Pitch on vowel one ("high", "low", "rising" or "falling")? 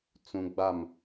low